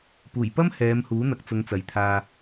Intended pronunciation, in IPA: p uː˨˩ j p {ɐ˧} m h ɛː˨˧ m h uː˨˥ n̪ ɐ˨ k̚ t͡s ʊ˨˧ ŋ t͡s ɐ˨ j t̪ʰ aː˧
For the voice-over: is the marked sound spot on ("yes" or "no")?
no